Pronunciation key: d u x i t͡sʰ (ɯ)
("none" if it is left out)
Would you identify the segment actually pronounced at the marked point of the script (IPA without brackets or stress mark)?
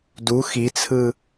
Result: ɯ